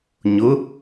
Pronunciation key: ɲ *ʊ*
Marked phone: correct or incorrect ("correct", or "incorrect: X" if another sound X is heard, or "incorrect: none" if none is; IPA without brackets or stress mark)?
correct